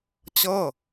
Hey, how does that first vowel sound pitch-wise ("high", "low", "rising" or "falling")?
falling